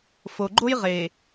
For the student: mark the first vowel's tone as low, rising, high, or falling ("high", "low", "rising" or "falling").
low